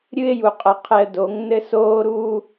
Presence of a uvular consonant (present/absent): present